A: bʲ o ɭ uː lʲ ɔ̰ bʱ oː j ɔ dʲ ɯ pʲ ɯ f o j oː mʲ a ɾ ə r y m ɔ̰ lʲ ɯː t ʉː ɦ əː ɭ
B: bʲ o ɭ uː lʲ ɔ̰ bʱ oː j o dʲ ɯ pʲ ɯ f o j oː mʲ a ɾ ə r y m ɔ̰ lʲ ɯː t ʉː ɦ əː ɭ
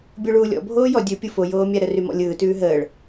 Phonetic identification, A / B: A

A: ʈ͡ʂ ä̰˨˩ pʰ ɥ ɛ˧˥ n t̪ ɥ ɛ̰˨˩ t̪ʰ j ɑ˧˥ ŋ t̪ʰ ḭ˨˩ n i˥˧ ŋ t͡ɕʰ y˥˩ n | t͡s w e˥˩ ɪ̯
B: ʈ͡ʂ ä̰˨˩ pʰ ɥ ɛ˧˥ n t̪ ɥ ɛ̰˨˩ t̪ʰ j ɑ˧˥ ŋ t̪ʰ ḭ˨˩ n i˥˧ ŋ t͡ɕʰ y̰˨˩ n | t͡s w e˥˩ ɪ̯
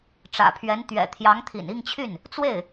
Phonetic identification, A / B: A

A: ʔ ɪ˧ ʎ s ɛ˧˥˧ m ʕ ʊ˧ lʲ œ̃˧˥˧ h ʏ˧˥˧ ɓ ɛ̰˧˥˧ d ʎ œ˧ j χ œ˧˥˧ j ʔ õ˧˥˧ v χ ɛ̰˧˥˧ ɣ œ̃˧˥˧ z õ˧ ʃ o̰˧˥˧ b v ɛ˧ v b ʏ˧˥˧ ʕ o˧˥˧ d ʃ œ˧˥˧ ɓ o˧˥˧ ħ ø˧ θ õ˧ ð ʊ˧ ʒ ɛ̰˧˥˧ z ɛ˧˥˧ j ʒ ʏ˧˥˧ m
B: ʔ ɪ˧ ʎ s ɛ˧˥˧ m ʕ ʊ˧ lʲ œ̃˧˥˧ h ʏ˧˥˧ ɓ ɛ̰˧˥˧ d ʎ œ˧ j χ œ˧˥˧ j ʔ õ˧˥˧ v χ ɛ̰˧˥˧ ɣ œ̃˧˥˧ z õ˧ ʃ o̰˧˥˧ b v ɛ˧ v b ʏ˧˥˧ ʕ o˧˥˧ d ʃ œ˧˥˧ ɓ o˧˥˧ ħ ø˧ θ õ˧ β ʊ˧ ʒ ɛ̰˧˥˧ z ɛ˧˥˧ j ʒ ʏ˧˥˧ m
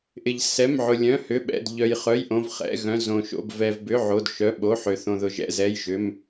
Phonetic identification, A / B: A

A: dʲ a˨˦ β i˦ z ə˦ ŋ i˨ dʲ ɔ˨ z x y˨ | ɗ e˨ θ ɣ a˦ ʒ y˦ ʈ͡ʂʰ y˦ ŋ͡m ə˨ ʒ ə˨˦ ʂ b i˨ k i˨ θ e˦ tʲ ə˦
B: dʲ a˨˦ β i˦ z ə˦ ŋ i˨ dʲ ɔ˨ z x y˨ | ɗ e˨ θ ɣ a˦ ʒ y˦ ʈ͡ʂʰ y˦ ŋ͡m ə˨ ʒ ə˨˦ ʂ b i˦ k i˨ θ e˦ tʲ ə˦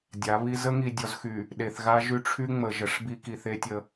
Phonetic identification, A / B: B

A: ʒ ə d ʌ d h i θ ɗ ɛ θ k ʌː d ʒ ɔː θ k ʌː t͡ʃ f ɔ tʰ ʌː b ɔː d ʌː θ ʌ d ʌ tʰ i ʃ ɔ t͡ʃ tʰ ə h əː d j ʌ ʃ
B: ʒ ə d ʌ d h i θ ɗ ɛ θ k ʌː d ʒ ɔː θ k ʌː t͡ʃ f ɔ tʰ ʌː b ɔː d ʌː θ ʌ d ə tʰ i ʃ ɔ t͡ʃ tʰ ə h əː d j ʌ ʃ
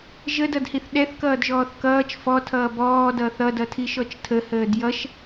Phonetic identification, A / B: A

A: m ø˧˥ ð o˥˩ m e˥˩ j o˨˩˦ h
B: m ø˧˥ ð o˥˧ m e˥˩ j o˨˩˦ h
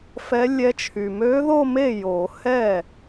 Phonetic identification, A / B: B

